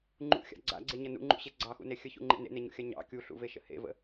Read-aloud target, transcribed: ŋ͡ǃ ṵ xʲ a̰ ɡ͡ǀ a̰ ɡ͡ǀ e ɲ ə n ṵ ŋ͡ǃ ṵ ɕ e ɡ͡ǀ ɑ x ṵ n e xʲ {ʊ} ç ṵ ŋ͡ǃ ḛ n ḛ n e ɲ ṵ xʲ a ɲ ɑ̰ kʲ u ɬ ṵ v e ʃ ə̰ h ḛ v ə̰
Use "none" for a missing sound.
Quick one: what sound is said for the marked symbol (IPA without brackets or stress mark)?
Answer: ə